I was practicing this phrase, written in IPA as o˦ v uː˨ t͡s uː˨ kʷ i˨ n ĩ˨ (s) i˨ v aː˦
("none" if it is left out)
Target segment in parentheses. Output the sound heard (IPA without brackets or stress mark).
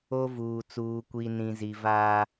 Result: z